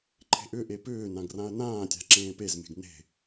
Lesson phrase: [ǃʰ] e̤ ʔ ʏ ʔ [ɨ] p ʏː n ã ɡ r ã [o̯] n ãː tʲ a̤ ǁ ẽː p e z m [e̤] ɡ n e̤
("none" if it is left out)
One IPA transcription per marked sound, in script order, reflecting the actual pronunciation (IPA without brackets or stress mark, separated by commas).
ǃʰ, e, ɐ̯, e̤